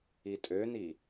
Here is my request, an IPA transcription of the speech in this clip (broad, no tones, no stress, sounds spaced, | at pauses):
i tʼ ø n i